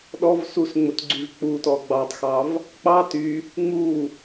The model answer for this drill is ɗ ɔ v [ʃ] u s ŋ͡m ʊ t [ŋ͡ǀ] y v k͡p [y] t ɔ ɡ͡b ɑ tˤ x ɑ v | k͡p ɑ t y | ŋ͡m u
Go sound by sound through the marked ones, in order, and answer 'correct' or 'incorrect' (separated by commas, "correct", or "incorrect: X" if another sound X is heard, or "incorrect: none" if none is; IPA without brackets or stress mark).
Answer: incorrect: s, incorrect: ɡ͡ǀ, incorrect: u